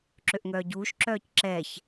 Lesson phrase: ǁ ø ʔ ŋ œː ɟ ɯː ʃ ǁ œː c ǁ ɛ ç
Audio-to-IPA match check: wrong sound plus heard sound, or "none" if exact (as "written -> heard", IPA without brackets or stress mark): ɯː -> uː